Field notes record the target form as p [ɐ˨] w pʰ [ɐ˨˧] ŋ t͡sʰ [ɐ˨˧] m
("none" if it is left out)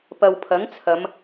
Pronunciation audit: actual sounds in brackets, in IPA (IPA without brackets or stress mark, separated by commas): ɐ˨, ɐ˨˥, ɐ˨˧